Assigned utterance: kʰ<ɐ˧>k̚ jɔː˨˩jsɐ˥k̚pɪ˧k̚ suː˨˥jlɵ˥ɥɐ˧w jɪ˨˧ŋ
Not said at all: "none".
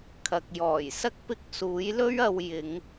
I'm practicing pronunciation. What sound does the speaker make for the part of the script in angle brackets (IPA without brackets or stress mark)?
ɐ˨